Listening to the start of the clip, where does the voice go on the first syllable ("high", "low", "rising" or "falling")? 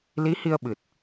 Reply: rising